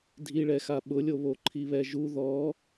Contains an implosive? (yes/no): yes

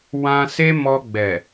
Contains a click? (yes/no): no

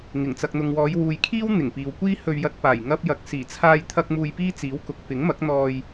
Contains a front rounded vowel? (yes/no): no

